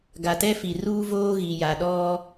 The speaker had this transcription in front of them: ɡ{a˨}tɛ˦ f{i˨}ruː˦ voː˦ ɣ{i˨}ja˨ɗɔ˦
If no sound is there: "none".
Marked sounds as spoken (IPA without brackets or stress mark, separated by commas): a˨, i˨, i˨